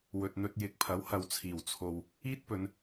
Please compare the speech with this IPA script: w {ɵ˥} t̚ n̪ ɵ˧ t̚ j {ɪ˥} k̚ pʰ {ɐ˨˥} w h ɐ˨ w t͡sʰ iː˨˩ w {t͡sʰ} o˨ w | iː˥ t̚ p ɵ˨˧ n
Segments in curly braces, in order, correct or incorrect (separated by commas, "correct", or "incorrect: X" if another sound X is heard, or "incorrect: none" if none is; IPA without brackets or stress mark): incorrect: ɵ˨, incorrect: ɪ˨˥, correct, correct